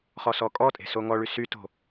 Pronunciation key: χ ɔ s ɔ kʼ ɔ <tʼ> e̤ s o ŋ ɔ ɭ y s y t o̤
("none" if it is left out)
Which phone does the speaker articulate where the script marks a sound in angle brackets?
tʼ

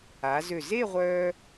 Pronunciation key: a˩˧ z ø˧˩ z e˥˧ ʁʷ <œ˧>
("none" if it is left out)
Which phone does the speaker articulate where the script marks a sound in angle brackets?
œ˧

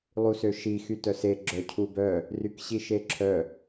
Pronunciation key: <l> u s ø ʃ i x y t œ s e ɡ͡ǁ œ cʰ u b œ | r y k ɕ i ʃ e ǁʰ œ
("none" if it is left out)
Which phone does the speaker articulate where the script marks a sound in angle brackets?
lˠ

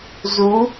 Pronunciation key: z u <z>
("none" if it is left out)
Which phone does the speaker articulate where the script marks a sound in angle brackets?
none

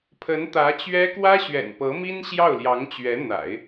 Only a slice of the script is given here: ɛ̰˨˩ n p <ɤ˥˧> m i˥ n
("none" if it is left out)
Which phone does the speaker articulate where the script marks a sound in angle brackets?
ɤ˧˥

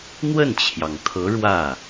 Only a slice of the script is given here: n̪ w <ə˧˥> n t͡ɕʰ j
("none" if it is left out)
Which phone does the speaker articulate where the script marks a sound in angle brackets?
ə˥˩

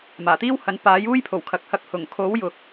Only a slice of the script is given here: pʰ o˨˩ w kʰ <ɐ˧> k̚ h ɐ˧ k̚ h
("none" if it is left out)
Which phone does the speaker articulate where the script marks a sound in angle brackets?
ɐ˨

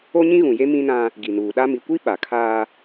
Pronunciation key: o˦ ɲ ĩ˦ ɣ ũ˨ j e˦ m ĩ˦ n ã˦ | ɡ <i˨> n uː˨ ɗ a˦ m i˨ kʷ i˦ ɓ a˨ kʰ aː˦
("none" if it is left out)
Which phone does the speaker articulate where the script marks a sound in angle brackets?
i˨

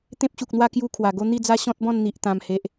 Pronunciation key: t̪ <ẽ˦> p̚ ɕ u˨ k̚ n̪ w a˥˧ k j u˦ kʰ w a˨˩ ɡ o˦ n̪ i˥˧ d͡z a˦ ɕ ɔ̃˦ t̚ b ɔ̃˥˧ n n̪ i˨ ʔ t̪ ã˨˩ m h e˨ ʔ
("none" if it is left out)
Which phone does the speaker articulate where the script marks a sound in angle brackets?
ẽ˦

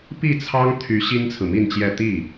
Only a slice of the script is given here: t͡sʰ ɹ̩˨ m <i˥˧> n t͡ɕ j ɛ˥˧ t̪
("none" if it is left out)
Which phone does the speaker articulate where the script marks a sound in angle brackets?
i˥˧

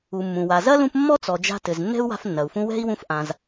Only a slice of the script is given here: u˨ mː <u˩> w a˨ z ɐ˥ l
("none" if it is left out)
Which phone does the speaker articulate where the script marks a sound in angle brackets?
ũ˩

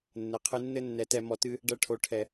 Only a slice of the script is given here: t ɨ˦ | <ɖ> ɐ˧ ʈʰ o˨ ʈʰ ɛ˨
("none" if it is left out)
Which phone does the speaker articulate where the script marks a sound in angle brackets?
ɖ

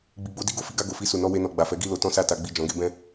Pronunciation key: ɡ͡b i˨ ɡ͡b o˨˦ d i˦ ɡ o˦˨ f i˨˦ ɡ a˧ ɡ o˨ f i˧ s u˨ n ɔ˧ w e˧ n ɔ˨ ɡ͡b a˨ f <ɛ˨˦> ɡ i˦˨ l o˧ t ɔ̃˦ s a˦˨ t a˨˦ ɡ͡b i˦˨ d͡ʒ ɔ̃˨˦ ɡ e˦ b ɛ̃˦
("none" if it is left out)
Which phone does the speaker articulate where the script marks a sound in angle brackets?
ɛ˨˦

